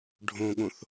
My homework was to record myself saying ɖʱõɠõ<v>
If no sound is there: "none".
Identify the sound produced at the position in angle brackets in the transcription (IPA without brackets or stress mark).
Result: θ